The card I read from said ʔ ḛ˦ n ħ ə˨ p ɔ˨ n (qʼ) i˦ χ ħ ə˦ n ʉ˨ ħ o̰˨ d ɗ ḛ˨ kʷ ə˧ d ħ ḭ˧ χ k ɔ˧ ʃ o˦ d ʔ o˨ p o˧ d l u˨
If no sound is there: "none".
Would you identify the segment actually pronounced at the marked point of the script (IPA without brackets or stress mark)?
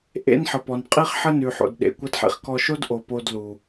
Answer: qʼ